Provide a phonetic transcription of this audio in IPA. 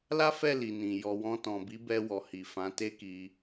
l a˦ f ɛ˦˨ l i˨ n ĩ˨ j ɔ˨ w ɔ̃˧ t ɔ̃˨ b i˨˦ b ɛ˧ w ɔ˨ h i˨ f ã˨˦ t e˦ k i˧

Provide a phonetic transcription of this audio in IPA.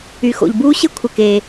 y˩ x o̰˩ ʎ b uː˥ ɕ ɪ˥ kʷʰ ɪ˩ k eː˩

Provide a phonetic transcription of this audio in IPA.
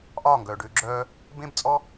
ʔ ɒː˦˨ ŋ ɡ œː˨ ɖ ʏː˧ ɡ͡ǁ œː˧ | b ẽ˦ b t͡sʼ ɔ˦

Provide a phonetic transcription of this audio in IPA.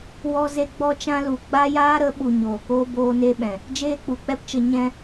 w ɔ˦ z e˦ ɡ͡b ɔ˦ t͡ʃ ã˦ l u˨ ɡ͡b a˦ j aː˦ ɾ ə˨˦ ɓ u˨ ɲ oː˨ k oː˦ b oː˦ n e˦ ɓ ɛ̃˨ | d͡ʒ eː˦ k͡p u˨ k͡p ɛ˦ p t͡ʃ ə˧ ɲ ɛ̃˦

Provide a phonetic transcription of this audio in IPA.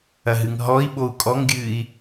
ɐ ɦ ɨ ŋ ɦ ɔ i̯ ɓ o u̯ kʼ ɔ ŋ ɡʲ ɨː i̯

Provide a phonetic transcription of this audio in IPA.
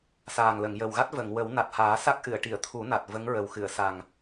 s aː˨˩ ŋ l ə˨˩˨ ŋ j ə˨˩ w ɣ a˦˥ t̚ v ə˨˩˨ ŋ w ə˨˩˦ w n a˨˩ t̚ h aː˨˩˦ s a˦˥ k̚ ʔ ɨ˨˩˨ ə̯ ʈ i˨˩˨ ə̯ t̪ʰ u˨˩˦ n a˨˩ t̚ v ə˧˥ ŋ ɹ ə˨˩ w x ɨ˨˩˨ ə̯ s a˨˩ ŋ

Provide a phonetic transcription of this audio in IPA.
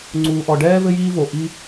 ŋ͡ǀ uː˨ ʔ ɔ˨ ɖ ɛː˦ v ɘ˦ j iː˦ v o˨ ʔ i˦

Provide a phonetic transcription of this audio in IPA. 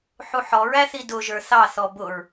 ħ u ħ ɔ ɹ æ θ i d ʊ ʒ ə˞ θ ɑ θ ɔ b ʊ ɹ

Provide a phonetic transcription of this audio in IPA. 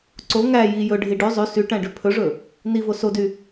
ǀ o ŋ æ j i j ɵ ɖʱ i ɖ ʉ zˤ ʉ s y ʈ æ̃ ɖ ʉ pʰ ɵ ʐ ɵ | n i v o s o d y

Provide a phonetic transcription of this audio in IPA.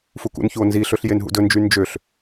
f u k ṵ n ç u o̯ n z i ɬ ɵ ɬ j e n ɦ ṵ d ɵ n d͡ʒ y n d͡ʒ ø ɬ

